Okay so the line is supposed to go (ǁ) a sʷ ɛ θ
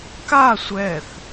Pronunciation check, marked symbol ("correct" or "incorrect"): incorrect